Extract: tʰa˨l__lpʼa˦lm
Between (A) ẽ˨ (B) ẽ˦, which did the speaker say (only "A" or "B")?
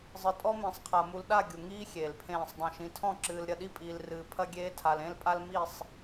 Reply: B